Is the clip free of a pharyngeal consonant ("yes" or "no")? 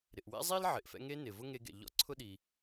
no